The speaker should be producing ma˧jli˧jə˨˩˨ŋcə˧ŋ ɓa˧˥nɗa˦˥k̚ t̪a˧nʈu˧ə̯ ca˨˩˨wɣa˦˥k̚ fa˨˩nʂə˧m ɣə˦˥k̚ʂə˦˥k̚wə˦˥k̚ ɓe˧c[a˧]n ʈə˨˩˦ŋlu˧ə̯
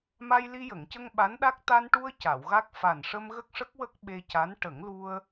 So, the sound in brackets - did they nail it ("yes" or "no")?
no